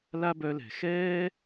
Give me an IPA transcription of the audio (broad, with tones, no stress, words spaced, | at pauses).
la˦bœ˧lɛ̤˨ xɛː˦